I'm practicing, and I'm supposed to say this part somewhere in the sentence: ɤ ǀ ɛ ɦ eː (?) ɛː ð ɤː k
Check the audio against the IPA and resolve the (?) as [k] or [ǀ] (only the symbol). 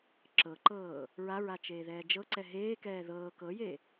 k